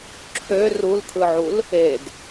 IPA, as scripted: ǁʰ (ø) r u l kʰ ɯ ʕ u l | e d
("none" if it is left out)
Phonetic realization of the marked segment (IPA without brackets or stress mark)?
ø